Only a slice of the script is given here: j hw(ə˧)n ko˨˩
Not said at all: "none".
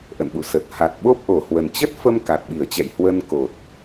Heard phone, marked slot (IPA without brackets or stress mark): ə˧